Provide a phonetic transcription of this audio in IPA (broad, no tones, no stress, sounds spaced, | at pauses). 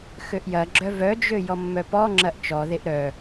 x ø ʔ j ɐ ɡ͡ǁ œ v œ d͡ʒ ø j ɔ mː œ p ɔ ŋ͡ǁ ɐ ʔ t͡ʃ ɔ ð e ʔ ɾ œ